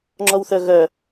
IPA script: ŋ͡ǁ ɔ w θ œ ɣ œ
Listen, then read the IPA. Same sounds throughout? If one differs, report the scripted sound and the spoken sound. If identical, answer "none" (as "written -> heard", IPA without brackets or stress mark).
none